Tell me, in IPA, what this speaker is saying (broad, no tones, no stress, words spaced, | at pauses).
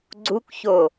ɡ͡ǀukço